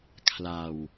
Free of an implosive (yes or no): yes